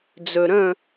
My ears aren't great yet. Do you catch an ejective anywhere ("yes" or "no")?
no